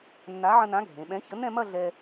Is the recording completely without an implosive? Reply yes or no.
no